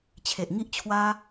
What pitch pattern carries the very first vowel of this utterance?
low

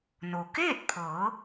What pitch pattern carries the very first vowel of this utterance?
low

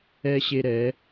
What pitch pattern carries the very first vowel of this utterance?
high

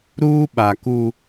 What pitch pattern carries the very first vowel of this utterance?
high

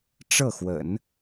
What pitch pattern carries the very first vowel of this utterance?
falling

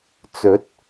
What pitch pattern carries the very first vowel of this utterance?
rising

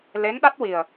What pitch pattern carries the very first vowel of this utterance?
rising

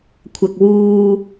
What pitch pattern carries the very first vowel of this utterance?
low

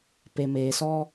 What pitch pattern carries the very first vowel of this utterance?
low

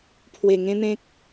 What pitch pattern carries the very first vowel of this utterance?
low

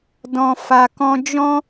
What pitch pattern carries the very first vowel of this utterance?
low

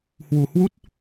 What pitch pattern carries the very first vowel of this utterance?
low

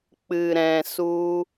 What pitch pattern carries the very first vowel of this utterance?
low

